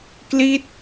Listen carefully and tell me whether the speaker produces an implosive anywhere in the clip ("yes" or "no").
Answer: no